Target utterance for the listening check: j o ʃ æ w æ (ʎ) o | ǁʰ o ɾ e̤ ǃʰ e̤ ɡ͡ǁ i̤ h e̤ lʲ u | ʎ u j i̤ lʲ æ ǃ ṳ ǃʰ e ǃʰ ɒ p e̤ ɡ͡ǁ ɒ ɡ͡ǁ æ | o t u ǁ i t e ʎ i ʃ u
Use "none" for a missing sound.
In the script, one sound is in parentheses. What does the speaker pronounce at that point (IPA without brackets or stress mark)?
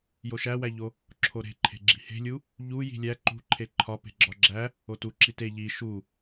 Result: ʎ